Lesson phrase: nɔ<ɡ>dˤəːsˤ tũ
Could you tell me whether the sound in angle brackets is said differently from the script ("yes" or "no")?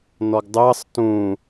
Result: no